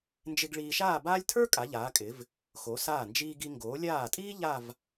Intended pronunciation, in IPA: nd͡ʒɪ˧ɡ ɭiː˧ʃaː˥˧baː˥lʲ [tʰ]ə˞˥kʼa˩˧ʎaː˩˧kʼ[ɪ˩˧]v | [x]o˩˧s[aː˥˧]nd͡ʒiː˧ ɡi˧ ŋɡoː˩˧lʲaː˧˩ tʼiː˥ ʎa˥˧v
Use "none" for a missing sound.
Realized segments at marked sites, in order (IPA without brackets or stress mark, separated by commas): tʰ, ɪ˩˧, x, aː˧˩